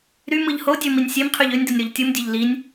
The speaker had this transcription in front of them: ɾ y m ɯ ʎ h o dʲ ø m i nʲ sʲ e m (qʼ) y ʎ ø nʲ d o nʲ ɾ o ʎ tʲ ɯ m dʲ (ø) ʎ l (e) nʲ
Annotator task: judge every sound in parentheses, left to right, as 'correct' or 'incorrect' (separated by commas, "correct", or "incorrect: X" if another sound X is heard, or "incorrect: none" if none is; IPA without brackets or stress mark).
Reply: incorrect: qʰ, correct, incorrect: i